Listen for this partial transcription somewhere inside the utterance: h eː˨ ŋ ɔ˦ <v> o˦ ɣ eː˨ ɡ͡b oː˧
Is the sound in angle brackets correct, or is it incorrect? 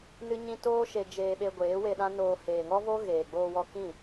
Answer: correct